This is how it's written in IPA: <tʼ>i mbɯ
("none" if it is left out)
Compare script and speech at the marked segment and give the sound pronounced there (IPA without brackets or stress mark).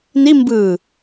n